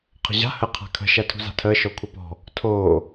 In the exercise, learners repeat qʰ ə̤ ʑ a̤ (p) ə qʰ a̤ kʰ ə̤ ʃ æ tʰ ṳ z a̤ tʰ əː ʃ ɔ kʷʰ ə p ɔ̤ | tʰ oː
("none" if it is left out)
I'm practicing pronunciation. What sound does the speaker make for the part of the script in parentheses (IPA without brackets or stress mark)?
h